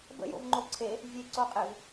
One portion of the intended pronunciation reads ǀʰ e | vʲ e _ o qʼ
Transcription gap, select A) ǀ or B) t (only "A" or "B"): A